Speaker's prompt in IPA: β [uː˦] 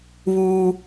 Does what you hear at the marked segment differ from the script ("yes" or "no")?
no